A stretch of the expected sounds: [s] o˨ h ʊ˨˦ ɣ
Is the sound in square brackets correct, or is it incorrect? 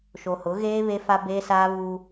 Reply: incorrect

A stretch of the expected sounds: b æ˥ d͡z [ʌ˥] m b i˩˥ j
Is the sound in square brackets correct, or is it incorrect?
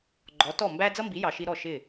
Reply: correct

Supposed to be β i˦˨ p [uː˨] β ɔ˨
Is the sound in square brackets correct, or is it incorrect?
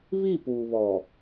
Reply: correct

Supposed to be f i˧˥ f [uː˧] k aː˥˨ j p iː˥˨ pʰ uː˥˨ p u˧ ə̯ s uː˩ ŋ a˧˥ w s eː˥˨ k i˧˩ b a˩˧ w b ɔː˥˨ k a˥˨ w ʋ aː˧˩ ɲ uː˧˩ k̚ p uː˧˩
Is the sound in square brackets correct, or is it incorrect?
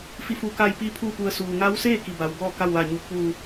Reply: correct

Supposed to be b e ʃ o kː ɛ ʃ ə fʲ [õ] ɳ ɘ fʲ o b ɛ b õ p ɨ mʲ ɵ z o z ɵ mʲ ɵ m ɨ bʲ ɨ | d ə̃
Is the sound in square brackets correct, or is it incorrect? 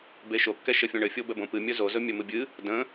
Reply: correct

